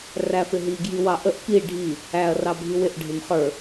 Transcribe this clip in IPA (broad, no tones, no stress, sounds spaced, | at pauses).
r æ f ɪ ɦ i ɡ j i w ɑ ʔ ə ʔ p i ɖʱ i | æ ɐ̯ r ɑ bʱ i w ɪ ʔ ɖʱ ɪ m χ ə˞